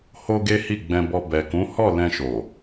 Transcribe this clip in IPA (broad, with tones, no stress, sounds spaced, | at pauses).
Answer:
h o˧ ɡ e˦ h i˦˨ ɡ͡b ɛ̃˧ b ɔ˧ b ɛ˨ k ũ˨˦ h ɔ˦˨ l ɛ̃˧ ʃ o˨